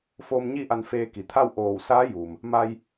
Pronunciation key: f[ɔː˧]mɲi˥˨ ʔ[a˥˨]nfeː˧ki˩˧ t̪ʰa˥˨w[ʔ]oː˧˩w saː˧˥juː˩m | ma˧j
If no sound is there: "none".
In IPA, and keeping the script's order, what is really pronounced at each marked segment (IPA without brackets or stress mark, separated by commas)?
oː˧, a˧, ʔ